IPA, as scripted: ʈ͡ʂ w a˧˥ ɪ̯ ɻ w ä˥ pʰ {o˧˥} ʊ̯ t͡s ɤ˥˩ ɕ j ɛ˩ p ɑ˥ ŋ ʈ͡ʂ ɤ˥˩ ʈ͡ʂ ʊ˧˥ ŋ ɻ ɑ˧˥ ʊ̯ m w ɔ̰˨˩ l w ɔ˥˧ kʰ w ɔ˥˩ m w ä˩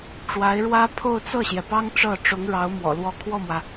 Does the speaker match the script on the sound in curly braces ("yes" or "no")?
no